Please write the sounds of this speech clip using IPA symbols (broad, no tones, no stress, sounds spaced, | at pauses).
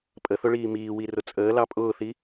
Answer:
pʼ ə θ ʊ ɭ iː m iː w i r ʊ t͡sʼ əː l ɑ pʼ ʊː θ i